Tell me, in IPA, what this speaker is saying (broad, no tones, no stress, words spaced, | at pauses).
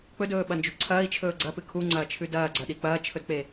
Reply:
k͡pɵdɵːɓɐnd͡ʒu ǀʰɐːi̯t͡ʃʰɵː ɡ͡ǀɐpɨ kʰuŋ͡ǀɐːt͡ʃʰʉ dɐːɡ͡ǀɐɗi k͡pɐːt͡ʃʰɵdk͡pe